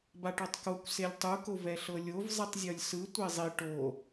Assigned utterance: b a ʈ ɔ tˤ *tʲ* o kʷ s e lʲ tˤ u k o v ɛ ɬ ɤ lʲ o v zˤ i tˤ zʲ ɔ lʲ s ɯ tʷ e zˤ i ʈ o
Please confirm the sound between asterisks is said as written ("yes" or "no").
no